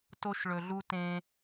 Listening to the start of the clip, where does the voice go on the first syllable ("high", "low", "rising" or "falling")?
high